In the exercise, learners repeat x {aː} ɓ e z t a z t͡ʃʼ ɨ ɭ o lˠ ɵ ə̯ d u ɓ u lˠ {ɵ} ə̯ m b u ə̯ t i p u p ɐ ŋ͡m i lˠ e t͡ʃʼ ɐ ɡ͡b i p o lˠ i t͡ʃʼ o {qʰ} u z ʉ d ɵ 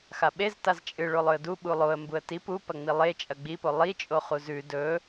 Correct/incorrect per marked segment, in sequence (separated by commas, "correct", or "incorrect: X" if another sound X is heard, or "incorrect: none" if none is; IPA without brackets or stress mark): incorrect: a, incorrect: o, incorrect: χ